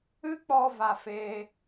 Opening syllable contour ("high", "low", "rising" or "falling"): high